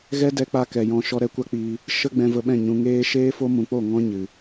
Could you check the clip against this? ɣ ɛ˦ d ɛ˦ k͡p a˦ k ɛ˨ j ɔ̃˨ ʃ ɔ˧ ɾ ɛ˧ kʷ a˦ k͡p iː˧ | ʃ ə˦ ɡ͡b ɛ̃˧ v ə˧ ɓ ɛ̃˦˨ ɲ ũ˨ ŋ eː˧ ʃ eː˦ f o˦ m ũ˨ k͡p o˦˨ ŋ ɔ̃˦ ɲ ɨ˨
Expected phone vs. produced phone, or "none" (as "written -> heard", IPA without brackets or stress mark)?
none